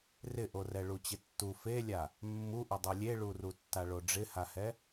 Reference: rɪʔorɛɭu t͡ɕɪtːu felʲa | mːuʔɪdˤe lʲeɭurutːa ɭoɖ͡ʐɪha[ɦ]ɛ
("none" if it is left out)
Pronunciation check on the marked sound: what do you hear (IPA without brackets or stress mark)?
h